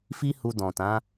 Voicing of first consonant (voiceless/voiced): voiceless